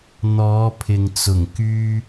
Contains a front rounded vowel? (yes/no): yes